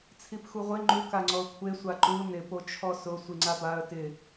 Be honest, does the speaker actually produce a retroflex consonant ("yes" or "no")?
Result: no